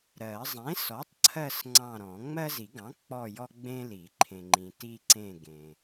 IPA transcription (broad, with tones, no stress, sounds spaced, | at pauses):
ɾ ɜ˨˩˦ zˤ ẽ˩˥ s ɔ˩˥ tˤ ǀʰ ɜ˦˨ s ŋ͡ǀ ɑ̃˦˨ ɾ ɔ̃˨˩˦ ŋ͡m ɜ˦ z i˨˩˦ ɡ ɑ̃˩˥ k͡p ɔ˦˨ j ɔ˦ ɡ͡b ẽ˦ l i˨˩˦ ǃʰ ẽ˨ ŋ͡ǃ ĩ˨ t i˦ ǀ ẽ˦˨ ɡ ẽ˨